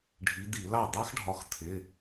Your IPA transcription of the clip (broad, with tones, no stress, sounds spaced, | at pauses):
ɖʱ i˨˦ d̪ i˧˩˧ l ɑ˥˩ d̪ ɑ˦˥ x ɖʱ ɒ˨˦ x t̪ʰ ɪ˩˧˩